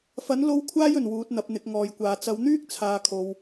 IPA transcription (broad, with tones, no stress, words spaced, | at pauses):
fɐ˨˥n lo˥w kʷʰaː˥jɵ˨˩n wuː˨˥t̚n̪ɐ˨˥p̚n̪ɪ˨˥k̚ ŋɔː˨jkʷaː˨ t͡sɐ˨˧wn̪yː˥k̚ t͡sʰaː˨˧kʰo˨w